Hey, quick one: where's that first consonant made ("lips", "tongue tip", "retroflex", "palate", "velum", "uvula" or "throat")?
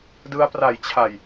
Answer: tongue tip